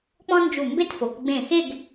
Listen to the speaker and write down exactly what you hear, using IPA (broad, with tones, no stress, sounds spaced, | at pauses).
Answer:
k͡p ɔ̃˥ n d͡ʒ u˧˩ m b e˥ t f o˩˧ k ɡ͡b ẽ˧˩ x e˥˧ ɡ